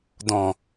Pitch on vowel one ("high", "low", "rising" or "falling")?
low